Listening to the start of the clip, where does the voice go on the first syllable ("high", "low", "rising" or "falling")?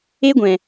high